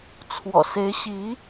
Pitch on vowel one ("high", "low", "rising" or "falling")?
low